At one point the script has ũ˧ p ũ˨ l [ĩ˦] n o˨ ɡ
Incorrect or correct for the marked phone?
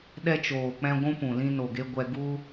incorrect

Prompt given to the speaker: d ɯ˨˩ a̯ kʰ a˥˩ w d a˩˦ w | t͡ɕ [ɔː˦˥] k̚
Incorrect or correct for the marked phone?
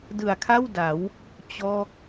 correct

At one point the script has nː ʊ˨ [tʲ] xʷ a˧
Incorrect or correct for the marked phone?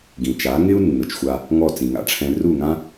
incorrect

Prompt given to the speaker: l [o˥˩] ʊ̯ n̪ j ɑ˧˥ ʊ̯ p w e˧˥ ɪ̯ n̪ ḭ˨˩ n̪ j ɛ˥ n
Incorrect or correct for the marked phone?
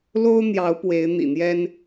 incorrect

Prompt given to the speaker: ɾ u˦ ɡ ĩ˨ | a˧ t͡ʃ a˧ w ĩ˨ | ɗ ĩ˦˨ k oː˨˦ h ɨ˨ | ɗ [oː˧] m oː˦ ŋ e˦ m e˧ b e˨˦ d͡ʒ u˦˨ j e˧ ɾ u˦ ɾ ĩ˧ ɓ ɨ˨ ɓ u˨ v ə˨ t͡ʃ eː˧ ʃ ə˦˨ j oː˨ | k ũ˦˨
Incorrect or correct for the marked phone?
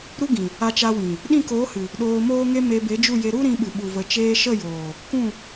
correct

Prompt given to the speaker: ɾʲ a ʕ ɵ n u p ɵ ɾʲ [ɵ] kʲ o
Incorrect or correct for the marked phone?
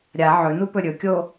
correct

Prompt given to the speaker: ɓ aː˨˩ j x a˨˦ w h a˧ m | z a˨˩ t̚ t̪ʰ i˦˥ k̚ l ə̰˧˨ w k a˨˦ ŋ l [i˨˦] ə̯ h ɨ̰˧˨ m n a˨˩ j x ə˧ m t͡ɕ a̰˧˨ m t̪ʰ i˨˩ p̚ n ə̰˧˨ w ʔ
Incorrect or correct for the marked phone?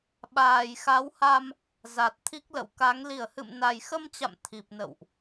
incorrect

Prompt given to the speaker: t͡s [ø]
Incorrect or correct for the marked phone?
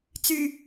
incorrect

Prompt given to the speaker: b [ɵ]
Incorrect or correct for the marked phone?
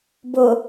incorrect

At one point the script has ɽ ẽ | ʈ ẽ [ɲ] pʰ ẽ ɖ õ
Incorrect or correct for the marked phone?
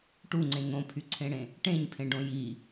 correct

